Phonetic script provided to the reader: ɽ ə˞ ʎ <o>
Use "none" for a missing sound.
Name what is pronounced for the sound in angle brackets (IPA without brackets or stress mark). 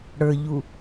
u